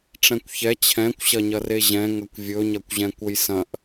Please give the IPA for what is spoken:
ʈ͡ʂɛ̃kʷçɛ t͡ɕʰɛ̃kʷɕɐɲɐre ʑɛ̃ ŋɐkʷvʲɵɲɐkʷʑɛ̃ kʷəjsɐ̃ʔ

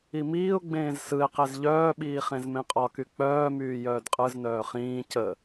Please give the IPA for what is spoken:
imiːʊ̯ɡ͡bẽːz sɯɪ̯qez ʎœːɓiː χẽzmẽqʼɒky k͡pœːmyː jœːdqʼɯznœː χĩː cə

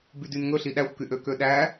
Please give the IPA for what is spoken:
bydynŋɵɬi ɗæxʷkyʔø køɗæ

